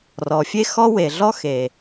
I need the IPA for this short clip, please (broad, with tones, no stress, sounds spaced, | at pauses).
r ɔ˩ fʲ e˥ x ɔ˥ w e˩ ɮ ɔ˥ x e˩